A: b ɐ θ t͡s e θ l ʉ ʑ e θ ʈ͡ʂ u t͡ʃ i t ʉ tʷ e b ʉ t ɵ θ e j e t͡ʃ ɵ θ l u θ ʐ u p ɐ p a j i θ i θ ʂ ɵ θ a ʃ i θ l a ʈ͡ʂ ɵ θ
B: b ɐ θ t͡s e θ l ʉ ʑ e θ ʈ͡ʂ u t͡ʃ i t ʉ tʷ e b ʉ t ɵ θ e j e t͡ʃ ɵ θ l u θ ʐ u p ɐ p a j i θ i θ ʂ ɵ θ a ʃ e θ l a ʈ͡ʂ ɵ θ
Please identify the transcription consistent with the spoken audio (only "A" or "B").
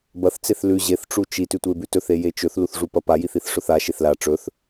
B